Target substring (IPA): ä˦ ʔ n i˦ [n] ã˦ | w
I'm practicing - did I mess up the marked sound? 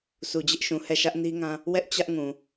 yes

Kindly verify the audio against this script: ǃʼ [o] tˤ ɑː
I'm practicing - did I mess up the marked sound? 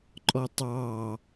yes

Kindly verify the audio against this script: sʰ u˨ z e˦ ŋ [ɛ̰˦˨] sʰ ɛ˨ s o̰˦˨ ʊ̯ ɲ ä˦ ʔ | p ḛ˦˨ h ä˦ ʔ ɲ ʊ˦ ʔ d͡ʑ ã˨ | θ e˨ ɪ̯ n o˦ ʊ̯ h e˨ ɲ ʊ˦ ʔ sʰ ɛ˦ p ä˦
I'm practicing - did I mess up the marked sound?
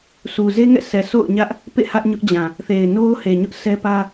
no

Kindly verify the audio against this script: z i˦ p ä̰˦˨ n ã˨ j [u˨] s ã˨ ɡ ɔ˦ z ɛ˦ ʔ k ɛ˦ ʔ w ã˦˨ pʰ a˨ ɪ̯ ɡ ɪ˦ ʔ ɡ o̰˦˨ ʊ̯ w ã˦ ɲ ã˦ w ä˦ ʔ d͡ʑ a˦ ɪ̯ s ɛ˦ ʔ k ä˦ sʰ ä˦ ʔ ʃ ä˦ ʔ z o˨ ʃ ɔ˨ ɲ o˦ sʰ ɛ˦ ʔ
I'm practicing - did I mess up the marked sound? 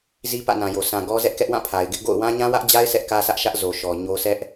yes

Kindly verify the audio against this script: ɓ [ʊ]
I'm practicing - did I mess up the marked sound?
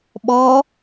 yes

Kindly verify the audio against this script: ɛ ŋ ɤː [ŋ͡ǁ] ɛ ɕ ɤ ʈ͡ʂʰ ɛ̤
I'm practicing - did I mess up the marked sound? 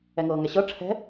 yes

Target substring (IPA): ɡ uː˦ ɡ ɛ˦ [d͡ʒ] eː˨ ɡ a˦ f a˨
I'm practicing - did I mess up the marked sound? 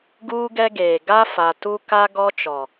yes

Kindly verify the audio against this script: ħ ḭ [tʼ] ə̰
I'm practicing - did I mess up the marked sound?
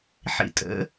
no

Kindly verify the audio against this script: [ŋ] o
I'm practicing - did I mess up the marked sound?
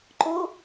yes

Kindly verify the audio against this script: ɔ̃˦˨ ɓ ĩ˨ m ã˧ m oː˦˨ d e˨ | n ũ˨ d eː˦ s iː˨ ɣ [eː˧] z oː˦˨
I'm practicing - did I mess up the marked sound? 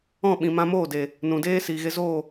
yes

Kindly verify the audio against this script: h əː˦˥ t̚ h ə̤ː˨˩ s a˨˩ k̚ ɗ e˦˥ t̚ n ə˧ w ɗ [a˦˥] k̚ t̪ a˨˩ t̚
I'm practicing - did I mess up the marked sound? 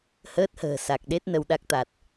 no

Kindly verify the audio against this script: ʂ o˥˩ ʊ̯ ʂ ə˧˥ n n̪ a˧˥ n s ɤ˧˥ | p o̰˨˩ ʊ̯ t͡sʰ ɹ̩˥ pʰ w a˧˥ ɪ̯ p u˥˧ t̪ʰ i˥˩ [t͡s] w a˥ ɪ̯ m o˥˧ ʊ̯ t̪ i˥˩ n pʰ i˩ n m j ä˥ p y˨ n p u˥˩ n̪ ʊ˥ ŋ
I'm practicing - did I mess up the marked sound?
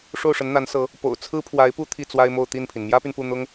no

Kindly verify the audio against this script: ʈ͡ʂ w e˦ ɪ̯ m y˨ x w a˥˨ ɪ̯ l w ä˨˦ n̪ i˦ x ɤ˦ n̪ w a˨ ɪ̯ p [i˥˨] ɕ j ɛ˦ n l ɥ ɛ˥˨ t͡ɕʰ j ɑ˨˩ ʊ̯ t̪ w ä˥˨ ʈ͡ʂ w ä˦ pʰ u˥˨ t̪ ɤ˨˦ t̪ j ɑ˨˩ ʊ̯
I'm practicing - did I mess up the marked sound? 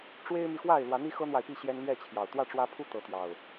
no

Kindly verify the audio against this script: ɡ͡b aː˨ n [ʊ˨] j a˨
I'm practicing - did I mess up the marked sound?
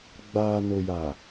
no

